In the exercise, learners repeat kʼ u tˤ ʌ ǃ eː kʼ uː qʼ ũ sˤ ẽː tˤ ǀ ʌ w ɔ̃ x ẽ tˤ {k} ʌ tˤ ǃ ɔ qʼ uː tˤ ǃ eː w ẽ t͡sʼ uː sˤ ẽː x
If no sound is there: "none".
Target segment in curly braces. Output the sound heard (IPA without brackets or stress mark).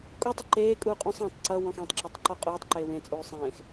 ǁ